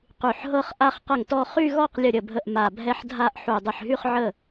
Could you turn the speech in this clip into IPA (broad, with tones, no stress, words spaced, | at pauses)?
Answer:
qy˧˩ħɦɤ˥˧χ ʔa˥˧χqə˥˩ŋtɔ˥˧ χy˥˧ɣɔ˥˧q lʲə˥˩ɾʲə˥˩bʱə˥˩ʔ ma˧˩ bʱɛ˥˧ħdʱa˥˧ʔ ħu˧˩dˤə˧˩ħɦy˥˧χʕə˥˩